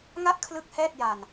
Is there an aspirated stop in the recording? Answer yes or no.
yes